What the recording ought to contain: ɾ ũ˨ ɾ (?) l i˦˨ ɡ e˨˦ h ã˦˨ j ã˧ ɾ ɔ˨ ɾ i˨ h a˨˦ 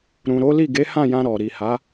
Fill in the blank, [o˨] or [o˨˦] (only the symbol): o˨˦